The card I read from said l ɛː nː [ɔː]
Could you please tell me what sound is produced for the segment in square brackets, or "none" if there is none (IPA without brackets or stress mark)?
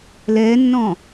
ɔ̃ː